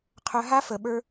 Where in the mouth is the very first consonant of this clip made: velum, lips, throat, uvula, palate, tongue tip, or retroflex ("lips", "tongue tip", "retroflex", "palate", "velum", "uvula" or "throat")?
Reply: uvula